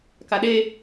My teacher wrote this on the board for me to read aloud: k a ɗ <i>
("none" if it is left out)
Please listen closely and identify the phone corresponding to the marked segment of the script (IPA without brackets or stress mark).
e